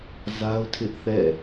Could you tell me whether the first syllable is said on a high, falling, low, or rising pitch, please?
high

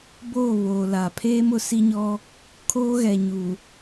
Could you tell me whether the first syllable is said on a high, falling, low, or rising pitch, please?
falling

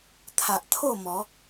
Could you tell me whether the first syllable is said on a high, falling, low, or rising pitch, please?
low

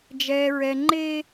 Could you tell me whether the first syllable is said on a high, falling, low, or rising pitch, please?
high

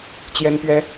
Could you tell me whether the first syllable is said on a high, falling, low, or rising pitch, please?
high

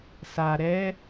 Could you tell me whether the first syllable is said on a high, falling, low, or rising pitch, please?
low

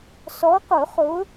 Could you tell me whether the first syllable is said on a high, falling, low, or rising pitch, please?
rising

